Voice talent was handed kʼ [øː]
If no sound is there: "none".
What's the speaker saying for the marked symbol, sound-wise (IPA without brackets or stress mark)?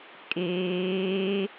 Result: eː